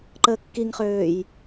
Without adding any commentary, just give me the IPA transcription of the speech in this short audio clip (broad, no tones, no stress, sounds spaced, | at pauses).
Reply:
ǃ əː kː i ŋ χ øː j